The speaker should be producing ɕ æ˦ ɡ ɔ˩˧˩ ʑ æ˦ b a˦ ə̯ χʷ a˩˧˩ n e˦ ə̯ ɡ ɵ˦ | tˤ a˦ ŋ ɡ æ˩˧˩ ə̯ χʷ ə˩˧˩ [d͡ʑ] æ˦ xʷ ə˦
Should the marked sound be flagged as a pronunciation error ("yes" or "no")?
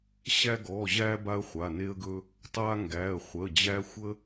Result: no